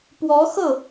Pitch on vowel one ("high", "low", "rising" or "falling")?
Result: rising